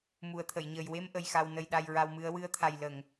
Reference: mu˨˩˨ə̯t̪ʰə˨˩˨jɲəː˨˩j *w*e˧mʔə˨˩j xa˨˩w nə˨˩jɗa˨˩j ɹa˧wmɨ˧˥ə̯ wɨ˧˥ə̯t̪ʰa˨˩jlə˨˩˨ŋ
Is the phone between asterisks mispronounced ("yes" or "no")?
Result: no